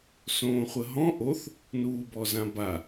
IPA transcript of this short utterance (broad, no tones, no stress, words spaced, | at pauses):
sõːχʷəɦɔ̃ ʔoθ | nuːbɔzãba